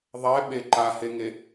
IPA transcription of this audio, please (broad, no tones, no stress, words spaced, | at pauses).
ðˤɛɓe ǃaheŋe